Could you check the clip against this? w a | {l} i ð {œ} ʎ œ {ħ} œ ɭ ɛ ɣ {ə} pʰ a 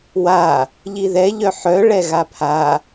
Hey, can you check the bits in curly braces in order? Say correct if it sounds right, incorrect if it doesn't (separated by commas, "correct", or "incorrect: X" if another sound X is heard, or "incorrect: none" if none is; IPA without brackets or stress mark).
incorrect: ʎ, incorrect: ɛ, correct, incorrect: a